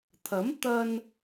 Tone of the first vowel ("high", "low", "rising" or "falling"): rising